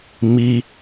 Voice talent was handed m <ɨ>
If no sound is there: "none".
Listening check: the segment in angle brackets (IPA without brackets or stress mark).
i